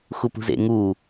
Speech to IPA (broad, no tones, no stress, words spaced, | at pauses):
xupṳzḛ ŋu